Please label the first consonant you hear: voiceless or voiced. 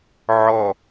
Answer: voiced